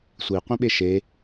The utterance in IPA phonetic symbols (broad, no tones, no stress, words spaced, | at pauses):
sʷiqʷĩɓe ʃe